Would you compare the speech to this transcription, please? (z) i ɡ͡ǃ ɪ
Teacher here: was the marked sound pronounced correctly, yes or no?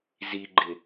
yes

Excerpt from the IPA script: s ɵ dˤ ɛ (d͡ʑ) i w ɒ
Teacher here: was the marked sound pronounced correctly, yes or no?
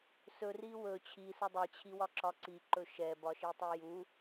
no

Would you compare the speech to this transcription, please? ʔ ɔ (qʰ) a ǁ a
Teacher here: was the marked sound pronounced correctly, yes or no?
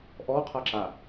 yes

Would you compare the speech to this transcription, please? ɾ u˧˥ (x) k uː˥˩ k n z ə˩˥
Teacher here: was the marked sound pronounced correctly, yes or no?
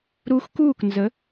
yes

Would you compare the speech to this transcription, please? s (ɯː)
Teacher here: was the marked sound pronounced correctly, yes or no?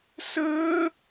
no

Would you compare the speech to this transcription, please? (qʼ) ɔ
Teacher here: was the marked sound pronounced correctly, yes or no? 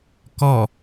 no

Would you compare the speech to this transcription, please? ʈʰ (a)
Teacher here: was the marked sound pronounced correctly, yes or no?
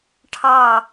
no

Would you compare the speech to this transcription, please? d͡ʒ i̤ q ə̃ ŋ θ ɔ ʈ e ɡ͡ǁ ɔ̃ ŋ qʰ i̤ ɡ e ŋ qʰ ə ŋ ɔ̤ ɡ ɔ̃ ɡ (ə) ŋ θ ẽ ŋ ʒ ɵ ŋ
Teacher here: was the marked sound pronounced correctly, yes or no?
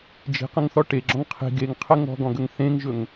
yes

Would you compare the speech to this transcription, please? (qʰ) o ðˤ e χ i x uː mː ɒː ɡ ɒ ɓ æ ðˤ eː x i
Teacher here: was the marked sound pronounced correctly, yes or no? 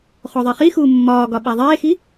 no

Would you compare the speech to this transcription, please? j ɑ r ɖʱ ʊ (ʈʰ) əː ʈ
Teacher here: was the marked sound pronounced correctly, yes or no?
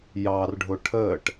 yes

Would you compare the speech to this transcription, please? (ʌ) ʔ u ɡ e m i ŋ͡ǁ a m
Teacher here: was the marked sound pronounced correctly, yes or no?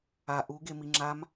no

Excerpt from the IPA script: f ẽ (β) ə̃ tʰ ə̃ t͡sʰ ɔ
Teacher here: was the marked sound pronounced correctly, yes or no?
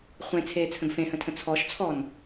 no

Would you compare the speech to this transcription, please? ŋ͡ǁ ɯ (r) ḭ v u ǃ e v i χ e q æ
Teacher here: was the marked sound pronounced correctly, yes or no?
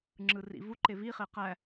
yes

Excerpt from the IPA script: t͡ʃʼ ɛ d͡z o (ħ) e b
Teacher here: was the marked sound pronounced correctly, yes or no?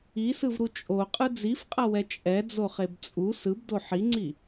no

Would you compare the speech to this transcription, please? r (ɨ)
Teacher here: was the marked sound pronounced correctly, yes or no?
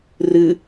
yes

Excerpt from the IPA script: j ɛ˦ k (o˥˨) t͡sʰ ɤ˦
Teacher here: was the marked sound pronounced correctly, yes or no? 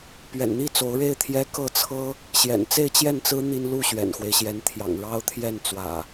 no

